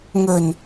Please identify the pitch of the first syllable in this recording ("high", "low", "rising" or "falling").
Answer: low